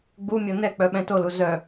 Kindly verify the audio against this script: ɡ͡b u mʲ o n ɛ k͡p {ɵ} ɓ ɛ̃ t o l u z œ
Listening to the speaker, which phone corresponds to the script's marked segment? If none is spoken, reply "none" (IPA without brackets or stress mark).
œ